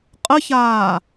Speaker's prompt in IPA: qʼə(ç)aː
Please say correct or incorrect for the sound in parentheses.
correct